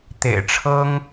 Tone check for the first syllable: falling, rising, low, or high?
low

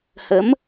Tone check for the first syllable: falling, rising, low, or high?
rising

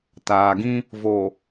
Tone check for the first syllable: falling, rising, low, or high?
low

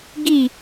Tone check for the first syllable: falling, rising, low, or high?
falling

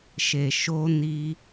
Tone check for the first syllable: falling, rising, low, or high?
low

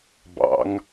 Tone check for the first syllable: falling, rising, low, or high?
rising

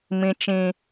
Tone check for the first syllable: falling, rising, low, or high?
low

